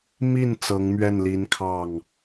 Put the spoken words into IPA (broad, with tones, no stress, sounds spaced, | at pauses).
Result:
m i˥˩ n t͡s ɤ˧˥ ŋ m ɥ ɛ˥˩ n l i˧˥ n kʰ ɑ˥˩ ŋ